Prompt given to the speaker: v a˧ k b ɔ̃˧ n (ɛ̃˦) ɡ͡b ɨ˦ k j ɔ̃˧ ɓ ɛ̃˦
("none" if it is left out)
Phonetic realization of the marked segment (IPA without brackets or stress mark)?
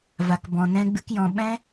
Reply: ɛ̃˦